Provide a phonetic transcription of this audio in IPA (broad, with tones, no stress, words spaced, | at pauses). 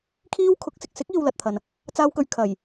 kʰiː˥w kʰʊ˨˥k̚ sɪ˨k̚sɪ˨˥k̚iː˨w lɐ˨t̚t̪ʰɐ˨n | t͡saː˥wkɵ˧ɥ kʰɐ˨˩j